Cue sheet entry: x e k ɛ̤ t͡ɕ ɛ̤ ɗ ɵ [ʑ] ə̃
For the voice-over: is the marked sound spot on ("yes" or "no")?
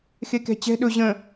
yes